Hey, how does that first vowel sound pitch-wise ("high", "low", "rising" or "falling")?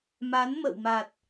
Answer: rising